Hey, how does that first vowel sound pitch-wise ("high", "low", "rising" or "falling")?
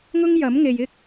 high